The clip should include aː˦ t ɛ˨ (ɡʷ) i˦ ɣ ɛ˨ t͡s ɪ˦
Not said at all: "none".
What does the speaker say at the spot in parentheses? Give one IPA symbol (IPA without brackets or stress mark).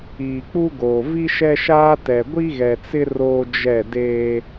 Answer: ɡʷ